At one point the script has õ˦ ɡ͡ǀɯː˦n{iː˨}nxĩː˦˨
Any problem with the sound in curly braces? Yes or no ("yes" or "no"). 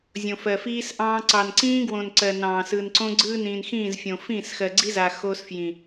yes